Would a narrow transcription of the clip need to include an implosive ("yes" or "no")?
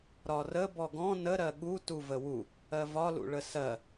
yes